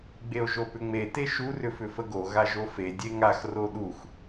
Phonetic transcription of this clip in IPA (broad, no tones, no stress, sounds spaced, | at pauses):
ɡ͡b e o̯ ʒ o p ʏ ŋ͡m e t e ʃ u r ʏ f ʏ f ə ɡ o ɣ a ʒ o f e dʲ e ŋ a x r o ɗ u x